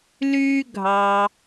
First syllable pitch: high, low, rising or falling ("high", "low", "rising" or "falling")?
high